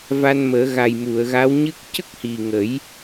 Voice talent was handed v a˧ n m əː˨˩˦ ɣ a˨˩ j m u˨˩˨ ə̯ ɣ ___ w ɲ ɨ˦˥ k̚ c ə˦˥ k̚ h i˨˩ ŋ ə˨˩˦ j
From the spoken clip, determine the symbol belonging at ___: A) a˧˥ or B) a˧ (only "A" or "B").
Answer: A